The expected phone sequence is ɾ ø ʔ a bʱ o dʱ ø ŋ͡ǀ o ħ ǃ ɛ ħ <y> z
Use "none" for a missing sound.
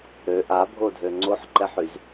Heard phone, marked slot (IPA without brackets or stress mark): y